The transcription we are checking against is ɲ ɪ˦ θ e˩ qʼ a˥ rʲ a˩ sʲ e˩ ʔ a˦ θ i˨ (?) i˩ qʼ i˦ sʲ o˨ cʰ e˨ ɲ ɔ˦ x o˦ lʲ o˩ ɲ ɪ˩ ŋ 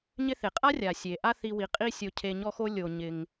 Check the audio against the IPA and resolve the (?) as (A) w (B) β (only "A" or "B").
A